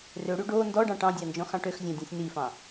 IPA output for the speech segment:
r ø ɽ y ɖ o n d ɔ ɖ ɑ̃ ʈ ɑ̃ dʲ ɑ n d͡ʒ ɔ̃ x ɑ̃ ʈ ø x zʲ ɑ̃ dʲ ɔ̃ sʲ n i f ɑ̃

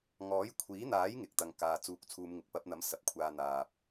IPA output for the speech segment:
ŋ ɔː˨˥ j kʷʰ iː˨˥ n̪ aː˨˥ j ŋ ɪ˨˥ k̚ t̪ ɐ˧ ŋ k aː˧ t͡s uː˥ k̚ t͡sʰ uː˥ m ŋ ɪ˧ k̚ p ɐ˨˥ p̚ n̪ ɐ˨˥ m s ɐ˨˥ p̚ kʷʰ aː˧ n̪ aː˨ p̚

